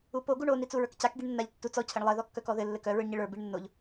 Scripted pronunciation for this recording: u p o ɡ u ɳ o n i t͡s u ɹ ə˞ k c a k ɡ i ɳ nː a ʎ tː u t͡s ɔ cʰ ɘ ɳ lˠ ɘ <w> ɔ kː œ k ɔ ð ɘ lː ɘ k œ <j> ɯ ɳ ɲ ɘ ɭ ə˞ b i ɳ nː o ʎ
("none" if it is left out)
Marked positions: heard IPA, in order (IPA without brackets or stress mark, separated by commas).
ð, ɹ